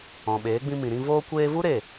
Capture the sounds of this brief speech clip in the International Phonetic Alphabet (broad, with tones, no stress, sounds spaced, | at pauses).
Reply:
ɔ̃˨ ɓ eː˨˦ ɡ͡b ĩ˧ m ĩ˨ ɾ ĩ˧ v oː˧ kʷ eː˧ v u˦ ɾ e˦˨